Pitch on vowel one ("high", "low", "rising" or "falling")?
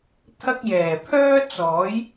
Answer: high